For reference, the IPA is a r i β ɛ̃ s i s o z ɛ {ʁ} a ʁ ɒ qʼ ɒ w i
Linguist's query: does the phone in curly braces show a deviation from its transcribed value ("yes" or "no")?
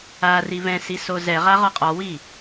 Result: no